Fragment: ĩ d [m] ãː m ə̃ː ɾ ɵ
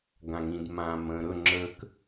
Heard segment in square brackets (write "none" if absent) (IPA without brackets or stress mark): m